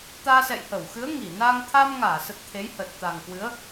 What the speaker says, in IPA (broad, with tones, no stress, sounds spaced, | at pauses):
t̪ aː˧ s ɛ̰˧˨ j h ə˧˩ w x ɨ˨˦ ə̯ ŋ i˧˩ n aː˧ ŋ t̪ʰ a˧ m ŋ aː˧˩ s ə˨˩ t̚ t̪ʰ e˨˦ j h ə˨˩ t̚ t̪ a˨˩ ŋ k w ɨ˨˦ ə̯